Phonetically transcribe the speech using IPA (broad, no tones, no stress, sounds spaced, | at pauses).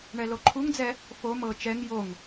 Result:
ɳ ɛ l o ǃʰ u ŋ d͡z ɛ | f o m ɤ t͡ʃ ɛ ŋ j o ŋ